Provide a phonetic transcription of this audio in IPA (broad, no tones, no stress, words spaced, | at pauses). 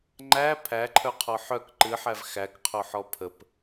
ŋ͡ǃæ pʰæǃʰœqʰɔ ħœk ǃɨħæv xækqʰoħɔ pʰəp